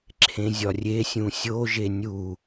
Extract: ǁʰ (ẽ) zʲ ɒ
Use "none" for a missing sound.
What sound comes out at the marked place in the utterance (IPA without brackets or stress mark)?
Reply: ẽ